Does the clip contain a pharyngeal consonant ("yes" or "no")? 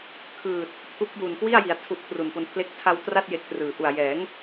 no